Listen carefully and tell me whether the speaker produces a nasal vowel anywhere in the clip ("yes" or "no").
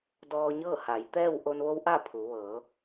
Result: no